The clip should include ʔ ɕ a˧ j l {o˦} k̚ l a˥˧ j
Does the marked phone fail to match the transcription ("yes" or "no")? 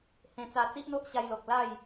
yes